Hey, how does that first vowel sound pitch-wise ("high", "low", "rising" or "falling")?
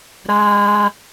high